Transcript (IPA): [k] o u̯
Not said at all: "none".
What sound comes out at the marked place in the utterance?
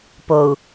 p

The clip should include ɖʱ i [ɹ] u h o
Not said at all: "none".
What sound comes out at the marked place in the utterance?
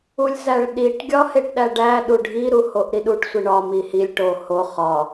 ɾ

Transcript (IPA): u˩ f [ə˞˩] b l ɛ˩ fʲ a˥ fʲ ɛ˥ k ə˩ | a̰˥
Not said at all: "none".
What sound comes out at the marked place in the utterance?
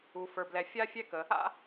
ə˞˩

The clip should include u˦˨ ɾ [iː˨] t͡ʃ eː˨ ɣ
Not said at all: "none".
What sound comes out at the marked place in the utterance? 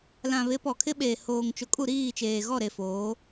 iː˦˨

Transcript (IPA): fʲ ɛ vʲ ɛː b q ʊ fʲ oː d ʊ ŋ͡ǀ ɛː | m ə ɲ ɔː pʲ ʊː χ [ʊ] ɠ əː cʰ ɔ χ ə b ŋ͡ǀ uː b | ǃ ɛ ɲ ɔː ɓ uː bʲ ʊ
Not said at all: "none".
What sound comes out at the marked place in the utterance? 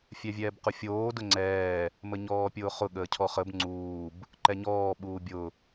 ʊ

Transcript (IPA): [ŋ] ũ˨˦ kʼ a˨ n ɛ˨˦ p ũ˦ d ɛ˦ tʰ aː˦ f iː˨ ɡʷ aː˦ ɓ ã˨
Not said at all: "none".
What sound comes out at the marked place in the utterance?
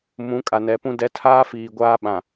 m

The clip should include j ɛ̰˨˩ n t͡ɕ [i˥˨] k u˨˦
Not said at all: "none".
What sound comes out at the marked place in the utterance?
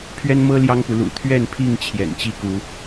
i˥˨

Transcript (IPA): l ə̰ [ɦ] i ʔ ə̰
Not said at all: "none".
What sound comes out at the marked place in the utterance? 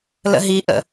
ɦ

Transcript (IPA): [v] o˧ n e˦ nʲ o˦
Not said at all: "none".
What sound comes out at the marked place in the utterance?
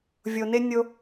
vʲ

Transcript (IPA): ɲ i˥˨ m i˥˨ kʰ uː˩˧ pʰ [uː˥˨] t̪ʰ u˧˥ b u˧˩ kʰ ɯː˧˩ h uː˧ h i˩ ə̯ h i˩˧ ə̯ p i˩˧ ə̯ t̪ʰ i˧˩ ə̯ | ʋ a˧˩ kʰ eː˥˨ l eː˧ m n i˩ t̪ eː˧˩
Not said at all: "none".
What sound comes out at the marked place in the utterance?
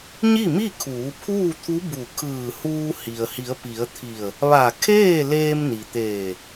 uː˥˨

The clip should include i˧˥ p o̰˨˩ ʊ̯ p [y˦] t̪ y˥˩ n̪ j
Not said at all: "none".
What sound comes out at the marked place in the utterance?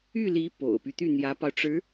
y˦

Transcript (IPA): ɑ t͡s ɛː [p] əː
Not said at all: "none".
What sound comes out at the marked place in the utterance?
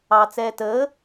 t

